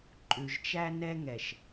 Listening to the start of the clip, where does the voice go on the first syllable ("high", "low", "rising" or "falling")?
low